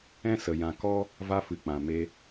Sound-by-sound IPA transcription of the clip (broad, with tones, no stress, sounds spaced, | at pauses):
ɛ̃˦ s ə˨ j ã˧ k ɔ˦ | v a˧ f ɨ˨ k͡p ã˨ m e˧